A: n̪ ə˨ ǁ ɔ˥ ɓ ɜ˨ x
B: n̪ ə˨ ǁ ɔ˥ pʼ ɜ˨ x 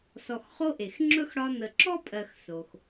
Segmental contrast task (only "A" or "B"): B